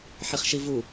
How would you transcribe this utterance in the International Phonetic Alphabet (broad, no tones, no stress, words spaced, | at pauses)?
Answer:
ħiχʃivu